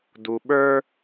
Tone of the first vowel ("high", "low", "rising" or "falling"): low